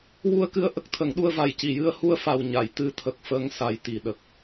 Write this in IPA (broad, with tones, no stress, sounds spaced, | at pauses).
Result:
w u˧ ə̯ k ɨ˧ ə̯ ʔ ə˦˥ k̚ t̪ʰ ə˨˩˦ ŋ ɗ u˧ ə̯ v a˨˩ j c i˨˩˨ j ɨ˧ ə̯ h u˧ ə̯ f a˨˩ w ɲ a˨˩˨ j t̪ ɨ˧ t̪ʰ ə˨˩ k̚ f ə˧ ŋ s a˨˩ j t̪ i˨˩ ɗ ə˨˩ k̚